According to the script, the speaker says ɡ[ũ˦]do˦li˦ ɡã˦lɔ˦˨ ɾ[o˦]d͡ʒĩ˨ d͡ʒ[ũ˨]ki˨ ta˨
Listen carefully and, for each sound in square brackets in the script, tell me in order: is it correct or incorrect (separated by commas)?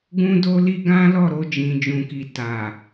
correct, incorrect, correct